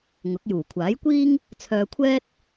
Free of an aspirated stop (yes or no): no